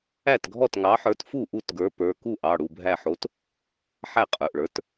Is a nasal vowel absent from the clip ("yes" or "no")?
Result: yes